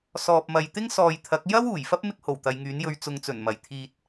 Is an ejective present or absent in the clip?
absent